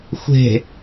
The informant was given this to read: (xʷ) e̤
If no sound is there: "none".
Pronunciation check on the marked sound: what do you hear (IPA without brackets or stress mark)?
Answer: xʷ